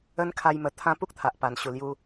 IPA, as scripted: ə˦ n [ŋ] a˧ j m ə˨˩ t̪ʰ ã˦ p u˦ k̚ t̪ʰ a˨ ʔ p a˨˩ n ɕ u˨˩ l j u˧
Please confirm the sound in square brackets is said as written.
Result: no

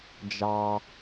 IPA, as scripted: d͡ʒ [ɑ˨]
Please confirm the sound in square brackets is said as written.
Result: yes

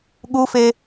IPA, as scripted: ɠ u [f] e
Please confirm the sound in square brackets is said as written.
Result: yes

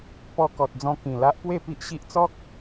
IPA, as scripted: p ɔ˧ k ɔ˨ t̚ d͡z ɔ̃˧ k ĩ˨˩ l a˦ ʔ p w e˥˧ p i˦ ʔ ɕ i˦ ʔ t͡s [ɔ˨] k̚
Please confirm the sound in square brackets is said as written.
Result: no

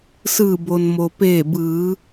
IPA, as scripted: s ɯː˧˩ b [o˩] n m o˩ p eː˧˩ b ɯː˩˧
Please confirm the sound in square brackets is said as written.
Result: yes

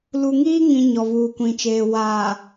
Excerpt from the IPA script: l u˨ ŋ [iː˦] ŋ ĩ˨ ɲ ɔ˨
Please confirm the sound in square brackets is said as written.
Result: yes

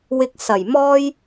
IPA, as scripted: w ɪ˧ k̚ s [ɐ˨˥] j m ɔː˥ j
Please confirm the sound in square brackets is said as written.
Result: no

